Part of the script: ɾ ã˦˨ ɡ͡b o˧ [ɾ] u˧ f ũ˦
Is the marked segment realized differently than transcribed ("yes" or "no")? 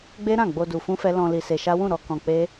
yes